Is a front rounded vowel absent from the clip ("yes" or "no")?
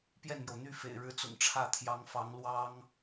no